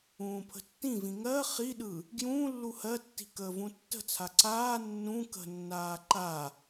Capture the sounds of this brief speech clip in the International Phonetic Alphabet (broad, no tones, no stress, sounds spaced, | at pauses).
ũː pʰ ə̤ tː ĩ v ĩ ŋ ɜ χ i ɗ ɯ | ɡ j ũː lː u h ɜ tː i̤ k əː v ũ tː ə̤ t͡sʰ a ǀ aː nː ũ k ə̤ nː aː ǃ a